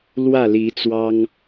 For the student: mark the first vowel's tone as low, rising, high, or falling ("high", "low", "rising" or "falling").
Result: falling